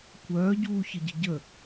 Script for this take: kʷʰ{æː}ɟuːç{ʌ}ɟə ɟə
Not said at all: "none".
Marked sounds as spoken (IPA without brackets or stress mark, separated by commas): œː, ə